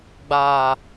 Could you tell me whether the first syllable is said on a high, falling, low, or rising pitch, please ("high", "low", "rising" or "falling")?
low